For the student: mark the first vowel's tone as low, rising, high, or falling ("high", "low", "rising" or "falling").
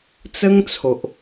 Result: high